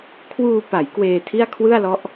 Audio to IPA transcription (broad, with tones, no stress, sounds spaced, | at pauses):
kʰ w uː˧ p a˩˦ j k w eː˧ tʰ i˥˩ a̯ kʰ w ɯ˥˩ a̯ l ɔ˦˥ ʔ